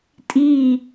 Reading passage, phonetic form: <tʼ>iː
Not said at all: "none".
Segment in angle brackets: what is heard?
tʼ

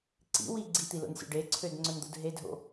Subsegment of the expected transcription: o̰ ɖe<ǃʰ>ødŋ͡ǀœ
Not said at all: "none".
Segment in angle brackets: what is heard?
ǀʰ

